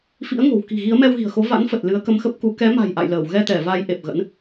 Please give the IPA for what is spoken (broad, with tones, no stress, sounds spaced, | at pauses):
f ḭ˧˥ ə̯ ŋ o̤˨˩ w k i̤˨˩ ɣ i˨˦ ə̯ m ɛ˧ w ɣ i̤˨˩ ə̯ x o˨˦ v a̰˧˥ n f ə˨˩ t̚ l ɨ˨˦ ə̯ k ə˧ m x ə˦˥ p̚ k u˨˦ k ɛ˨˦ m a̤˨˩ j ʔ a̰˧˨ j l əː˧˩ w ɣ ɛ˧ t̪ ɛ˧˩ v a˨˦ j ʔ e˨˩ p̚ ɣ ə̰˧˥ n